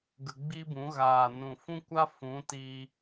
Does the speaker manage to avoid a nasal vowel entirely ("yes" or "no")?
no